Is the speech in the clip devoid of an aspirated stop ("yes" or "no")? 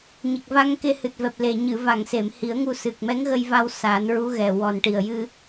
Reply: yes